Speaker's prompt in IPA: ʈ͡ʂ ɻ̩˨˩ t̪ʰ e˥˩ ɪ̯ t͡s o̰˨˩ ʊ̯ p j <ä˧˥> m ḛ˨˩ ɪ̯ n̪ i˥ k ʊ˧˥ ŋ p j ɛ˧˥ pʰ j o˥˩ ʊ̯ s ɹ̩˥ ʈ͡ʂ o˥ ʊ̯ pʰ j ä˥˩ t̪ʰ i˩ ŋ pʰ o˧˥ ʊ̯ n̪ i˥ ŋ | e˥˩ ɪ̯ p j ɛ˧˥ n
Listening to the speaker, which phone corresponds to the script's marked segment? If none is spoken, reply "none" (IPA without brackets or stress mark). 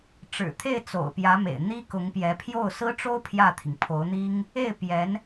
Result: ä˧˥